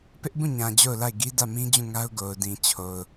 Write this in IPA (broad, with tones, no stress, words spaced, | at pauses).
pɪ˦ʔbũ˦˨ɲã˨ d͡ʑo˦˨ʊ̯la˦˨ɪ̯ ɡi˦dä˦˨ mĩ˦d͡ʑũ˦˨ŋa˦ʊ̯ ɡo˨ʊ̯dĩ˨ t͡ɕʰo˨ʊ̯